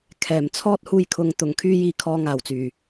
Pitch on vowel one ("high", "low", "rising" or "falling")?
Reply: low